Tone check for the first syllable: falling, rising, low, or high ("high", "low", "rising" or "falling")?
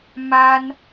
high